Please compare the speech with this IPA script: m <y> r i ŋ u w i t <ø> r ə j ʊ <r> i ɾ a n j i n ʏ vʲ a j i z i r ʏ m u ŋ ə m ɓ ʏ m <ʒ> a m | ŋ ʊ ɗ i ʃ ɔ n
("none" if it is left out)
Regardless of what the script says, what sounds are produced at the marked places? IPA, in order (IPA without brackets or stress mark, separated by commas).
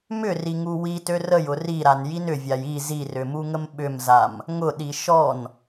ʏ, ø, r, z